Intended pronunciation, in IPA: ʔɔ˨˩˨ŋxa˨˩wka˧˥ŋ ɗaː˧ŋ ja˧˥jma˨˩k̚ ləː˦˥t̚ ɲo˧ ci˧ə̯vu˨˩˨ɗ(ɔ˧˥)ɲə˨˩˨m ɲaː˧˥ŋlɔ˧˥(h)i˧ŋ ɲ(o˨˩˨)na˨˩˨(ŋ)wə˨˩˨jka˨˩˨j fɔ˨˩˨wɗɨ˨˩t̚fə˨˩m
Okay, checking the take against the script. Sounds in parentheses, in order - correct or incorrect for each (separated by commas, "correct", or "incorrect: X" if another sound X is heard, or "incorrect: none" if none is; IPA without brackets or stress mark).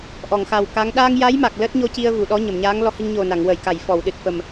correct, correct, incorrect: o˨˩, correct